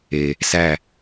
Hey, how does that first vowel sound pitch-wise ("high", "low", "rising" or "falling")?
low